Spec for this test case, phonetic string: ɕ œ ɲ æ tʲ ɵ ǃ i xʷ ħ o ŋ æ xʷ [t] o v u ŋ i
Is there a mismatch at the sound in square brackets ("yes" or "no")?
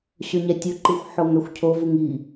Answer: yes